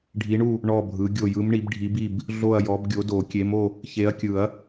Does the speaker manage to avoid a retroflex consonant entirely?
no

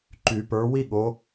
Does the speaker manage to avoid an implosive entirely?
no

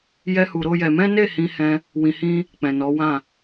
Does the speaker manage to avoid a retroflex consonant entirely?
yes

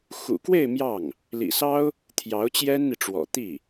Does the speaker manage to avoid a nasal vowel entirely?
yes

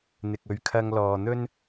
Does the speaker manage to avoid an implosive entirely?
yes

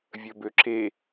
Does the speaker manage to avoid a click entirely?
no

